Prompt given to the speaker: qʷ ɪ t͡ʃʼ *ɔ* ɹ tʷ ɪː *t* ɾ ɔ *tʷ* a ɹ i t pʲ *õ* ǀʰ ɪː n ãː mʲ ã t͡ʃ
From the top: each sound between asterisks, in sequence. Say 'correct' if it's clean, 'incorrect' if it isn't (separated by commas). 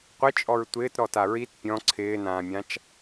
correct, correct, incorrect, incorrect